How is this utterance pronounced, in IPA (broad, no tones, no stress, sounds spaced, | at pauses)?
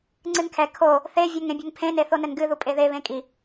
ŋ͡ǀ ɨ n kʰ ɛ kʰ o | θ e vʲ o ŋ ẽ bʲ ɘ ŋ pʰ ẽ n e θ o n ɘ n ɡ ɨ ð u pʼ e ð e β ẽ kʼ i